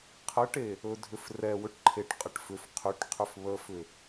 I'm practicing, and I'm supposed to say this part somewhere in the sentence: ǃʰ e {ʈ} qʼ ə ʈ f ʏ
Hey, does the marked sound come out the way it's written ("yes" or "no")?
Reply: yes